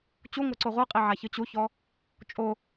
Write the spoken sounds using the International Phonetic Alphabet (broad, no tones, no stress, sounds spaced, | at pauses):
t͡ɕ u ŋʷ ɛ ǀ o ʁʷ ɯ qʼ i ʕ a ç ɯ t͡ɕ u ç ɔ | t͡ʃʼ o